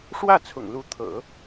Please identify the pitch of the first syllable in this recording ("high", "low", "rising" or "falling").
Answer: falling